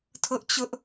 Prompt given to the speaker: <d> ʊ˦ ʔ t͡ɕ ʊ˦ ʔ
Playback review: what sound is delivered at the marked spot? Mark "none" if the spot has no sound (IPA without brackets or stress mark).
tʰ